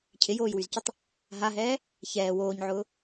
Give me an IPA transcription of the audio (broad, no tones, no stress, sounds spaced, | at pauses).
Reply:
cʰ ɪ j oː j w y z c ə tˤ | ɦ a ɦ ɛː | ç ɛː w oː ɲ ʕ ʊː